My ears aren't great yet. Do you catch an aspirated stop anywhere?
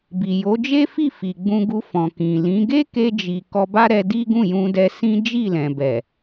no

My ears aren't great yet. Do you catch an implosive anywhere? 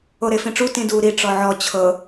no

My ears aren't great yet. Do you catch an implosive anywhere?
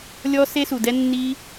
no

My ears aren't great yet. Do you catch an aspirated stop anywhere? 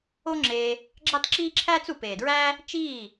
yes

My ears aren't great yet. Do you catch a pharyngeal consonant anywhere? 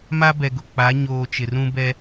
no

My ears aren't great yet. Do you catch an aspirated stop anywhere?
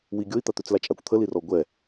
yes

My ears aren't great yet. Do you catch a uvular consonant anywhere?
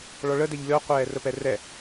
yes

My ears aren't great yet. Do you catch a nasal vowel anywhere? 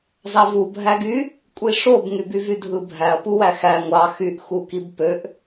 no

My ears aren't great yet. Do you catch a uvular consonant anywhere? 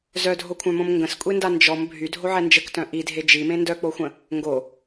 no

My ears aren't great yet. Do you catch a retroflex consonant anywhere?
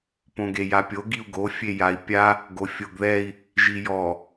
no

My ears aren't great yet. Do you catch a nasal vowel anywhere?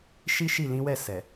yes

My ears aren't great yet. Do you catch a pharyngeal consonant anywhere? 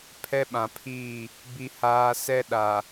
no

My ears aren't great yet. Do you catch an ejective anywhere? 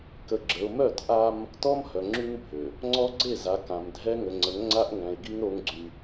no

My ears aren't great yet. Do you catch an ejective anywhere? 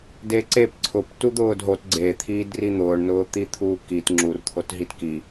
no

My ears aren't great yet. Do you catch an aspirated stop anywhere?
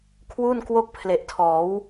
yes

